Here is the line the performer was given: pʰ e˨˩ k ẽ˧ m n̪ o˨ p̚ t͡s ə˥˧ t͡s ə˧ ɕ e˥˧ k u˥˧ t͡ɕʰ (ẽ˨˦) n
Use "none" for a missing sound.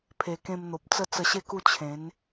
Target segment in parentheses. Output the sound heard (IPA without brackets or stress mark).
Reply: ẽ˨˦